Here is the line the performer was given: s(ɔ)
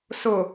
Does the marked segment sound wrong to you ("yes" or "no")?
yes